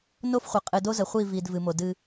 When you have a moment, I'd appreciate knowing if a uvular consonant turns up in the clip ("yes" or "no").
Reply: yes